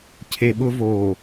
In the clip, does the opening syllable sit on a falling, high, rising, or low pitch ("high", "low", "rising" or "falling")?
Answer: low